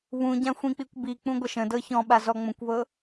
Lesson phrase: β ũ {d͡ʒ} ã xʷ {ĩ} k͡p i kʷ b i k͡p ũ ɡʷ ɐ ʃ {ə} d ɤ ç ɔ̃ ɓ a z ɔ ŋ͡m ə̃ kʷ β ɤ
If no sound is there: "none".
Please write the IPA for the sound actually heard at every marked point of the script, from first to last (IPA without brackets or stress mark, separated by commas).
ɟ, ĩ, ə̃